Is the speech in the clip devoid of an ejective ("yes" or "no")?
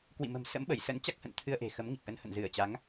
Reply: yes